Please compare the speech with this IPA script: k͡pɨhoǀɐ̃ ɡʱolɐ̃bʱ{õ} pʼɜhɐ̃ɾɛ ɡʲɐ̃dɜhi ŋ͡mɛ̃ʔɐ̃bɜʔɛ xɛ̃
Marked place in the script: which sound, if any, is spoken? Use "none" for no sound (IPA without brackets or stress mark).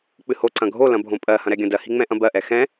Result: õ